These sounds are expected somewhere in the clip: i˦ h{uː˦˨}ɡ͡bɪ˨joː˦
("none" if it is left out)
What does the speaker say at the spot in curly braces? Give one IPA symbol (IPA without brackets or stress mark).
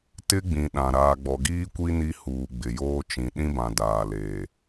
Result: uː˨